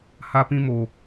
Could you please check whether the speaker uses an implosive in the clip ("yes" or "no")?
no